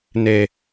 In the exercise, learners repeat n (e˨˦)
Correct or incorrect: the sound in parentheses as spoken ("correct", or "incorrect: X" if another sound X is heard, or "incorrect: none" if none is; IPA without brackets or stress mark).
incorrect: e˦